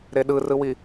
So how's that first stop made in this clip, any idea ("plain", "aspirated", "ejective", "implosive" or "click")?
implosive